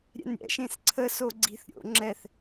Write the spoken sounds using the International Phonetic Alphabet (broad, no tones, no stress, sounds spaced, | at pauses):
ɾʲ ɛ̰ n ɾʲ ɛ̰ ʃ ẽ s ǀʰ ə s o ɡ͡ǀ i̤ θ ɾʲ o̰ ŋ͡ǁ ɛ θ